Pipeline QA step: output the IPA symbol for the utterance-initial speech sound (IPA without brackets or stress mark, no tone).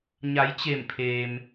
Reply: ɲ